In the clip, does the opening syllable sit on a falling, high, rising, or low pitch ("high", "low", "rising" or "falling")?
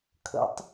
rising